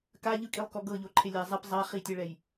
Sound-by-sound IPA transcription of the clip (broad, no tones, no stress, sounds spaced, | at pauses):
k a ʎ ɯ kʼ i lˠ k ɔ ɡ ɤ ʎ o ǃʰ e lʲ a zˤ ɛ p zˤ a χ i tʲ ɛ ɭ ɛ j